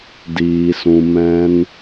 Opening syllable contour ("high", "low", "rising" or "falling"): high